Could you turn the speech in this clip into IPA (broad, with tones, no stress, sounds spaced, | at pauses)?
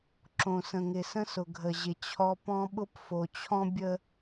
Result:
ǁ õ˨ s ə̃˨ ŋ ɪ˨ s ə̃˦ s ʊ˨ ɡʱ ə˨ ʑ ɪ˨ t͡ɕʰ ɔ˦ p ɔ̃˦ ɓ ʊ˦ p f o˨ t͡ɕʰ ɔ̃˦ bʲ ə˦